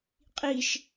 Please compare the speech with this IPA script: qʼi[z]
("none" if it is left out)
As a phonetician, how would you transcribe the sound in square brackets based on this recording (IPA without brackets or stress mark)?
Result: ʃ